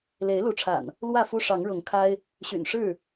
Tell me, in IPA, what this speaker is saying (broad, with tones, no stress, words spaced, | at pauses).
le˨˦ɪ̯ lu˨˦ʈ͡ʂʰa̰˨˩n | lwä˥˨fu˦ ʂɑ˨˦ŋɻʊ˨˦ŋkʰa˦ɪ̯ | ɕy̰˨˩nʂɻ̩˥˨